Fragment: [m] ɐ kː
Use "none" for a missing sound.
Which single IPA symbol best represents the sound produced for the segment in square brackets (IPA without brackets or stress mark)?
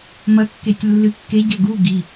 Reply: m